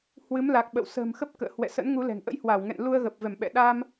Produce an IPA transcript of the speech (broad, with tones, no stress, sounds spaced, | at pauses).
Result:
h w ɨ˨˦ m l a˨˩ k̚ ɓ ə̰˧˨ w s ə̤ː˨˩ m x ə˦˥ p̚ k ə̰ː˧˨ h w ɛ̰˧˨ s ə̰˧˥ n ŋ u˨˦ l ɛ̤˨˩ ŋ ʔ ə̰˧˥ j h w a˧˩ w ŋ ɛ̰˧˨ n l u˧ ə̯ ɣ əː˨˩ p̚ v ɛ˧˩ m ɓ ɛ̰˧˨ ɗ a˧ m